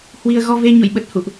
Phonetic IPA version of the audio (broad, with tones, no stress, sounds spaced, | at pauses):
h w i˧ ə̯ ɣ ɔ˧ v e˧ ɲ ṵ˧˨ j ɓ ə˨˩ t̚ h ṵ˧˨ ʔ